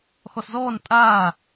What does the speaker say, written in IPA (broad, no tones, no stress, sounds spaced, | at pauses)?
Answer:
x ɔ s z ɔː n tʼ aː